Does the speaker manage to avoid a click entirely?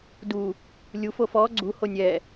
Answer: no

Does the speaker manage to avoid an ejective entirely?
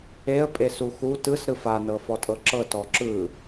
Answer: no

